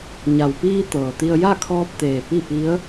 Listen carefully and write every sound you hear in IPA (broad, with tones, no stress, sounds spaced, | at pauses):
ɲ a˩ w p iː˧ t̪ ɤː˩ t̪ i˧ ə̯ j a˥˨ kʰ ɔː˧ p̚ t̪ eː˩ p i˥˨ p i˧˥ ə̯